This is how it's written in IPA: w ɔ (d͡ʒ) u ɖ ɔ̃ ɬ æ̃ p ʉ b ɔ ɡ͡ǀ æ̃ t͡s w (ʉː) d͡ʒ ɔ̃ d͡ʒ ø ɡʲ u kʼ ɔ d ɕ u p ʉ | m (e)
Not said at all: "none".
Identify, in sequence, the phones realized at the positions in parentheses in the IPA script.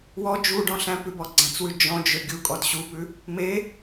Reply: d͡ʒ, ʉ, e

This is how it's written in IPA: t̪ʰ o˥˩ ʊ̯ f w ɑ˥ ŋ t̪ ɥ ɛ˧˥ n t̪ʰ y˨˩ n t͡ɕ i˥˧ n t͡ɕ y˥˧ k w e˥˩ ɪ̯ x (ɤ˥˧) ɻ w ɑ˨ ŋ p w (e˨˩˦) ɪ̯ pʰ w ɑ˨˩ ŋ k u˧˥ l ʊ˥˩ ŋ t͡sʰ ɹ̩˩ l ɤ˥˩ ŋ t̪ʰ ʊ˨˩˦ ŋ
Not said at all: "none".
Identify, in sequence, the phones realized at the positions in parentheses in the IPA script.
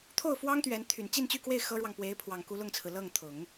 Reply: ɤ˥, e˧˥

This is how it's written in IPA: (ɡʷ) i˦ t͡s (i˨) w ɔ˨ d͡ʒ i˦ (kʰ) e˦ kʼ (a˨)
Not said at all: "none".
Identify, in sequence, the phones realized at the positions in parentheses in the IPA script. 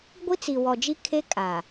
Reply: ɡʷ, i˨, kʰ, a˨

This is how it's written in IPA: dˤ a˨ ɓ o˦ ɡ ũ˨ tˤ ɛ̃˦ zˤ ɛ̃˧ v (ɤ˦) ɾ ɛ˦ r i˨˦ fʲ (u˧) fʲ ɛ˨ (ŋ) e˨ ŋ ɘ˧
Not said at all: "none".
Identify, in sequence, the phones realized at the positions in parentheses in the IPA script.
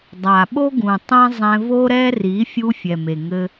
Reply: o˦, u˧, m

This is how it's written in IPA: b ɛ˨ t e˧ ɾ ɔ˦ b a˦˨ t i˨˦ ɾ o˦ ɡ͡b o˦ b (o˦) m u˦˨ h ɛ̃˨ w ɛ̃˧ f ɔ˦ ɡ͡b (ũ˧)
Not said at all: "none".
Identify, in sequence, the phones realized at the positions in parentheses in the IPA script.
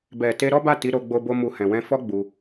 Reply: o˦, u˧

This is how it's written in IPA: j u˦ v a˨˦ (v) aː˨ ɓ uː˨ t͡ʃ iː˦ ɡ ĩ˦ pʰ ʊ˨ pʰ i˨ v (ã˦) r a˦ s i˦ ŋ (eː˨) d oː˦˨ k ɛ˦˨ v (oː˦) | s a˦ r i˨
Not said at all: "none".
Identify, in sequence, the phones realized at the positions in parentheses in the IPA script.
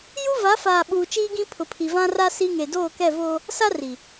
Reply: f, ã˦, e˨, oː˦

